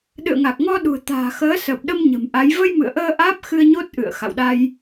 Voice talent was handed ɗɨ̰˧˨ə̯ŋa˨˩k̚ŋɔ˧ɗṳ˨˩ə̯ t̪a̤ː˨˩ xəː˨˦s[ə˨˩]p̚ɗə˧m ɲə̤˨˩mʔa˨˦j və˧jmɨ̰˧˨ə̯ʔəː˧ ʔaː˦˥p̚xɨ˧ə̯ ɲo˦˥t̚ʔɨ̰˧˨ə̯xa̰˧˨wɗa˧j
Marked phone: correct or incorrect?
incorrect